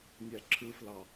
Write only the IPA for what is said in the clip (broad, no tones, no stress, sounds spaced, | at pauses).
nʲ æ ǁʰ ɯ f l ɑ